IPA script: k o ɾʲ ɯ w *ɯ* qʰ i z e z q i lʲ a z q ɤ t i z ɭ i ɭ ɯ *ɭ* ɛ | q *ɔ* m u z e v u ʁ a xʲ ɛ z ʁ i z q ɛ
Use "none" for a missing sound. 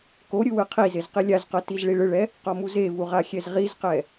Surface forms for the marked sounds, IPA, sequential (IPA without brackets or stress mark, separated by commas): ɯ, ɭ, ɔ